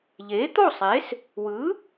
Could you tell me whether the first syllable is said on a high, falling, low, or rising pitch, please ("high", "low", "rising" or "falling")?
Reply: rising